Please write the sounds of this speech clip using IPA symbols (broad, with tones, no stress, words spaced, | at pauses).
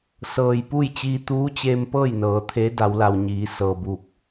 sɤː˩jpu˥˨j t͡ɕiː˧t̪uː˧˥t͡ɕeː˧mpɤː˥˨j nɤː˩˧t̪ʰe˧˥ da˩˧wla˩wɲiː˩˧ sɤː˩buː˧˩k̚